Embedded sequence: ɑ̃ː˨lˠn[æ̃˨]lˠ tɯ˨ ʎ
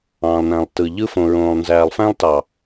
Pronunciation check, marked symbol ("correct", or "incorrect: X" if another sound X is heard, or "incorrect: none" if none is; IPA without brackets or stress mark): correct